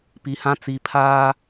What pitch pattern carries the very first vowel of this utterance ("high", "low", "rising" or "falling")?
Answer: low